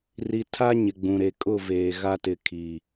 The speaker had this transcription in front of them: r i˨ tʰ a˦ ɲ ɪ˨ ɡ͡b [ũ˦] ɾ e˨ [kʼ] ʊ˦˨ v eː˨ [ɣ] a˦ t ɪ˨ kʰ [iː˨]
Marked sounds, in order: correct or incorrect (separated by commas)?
incorrect, correct, correct, correct